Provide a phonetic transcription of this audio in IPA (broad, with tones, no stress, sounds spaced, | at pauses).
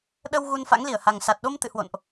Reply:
ɗ ə˧ w ɣ u˧ n f a̰˧˥ ŋ l i˧˩ ə̯ h a˨˩ ŋ s a˨˩ t̚ ɗ o˧ m t̪ ɨ̰˧˨ h w o̰˧˨ n ʔ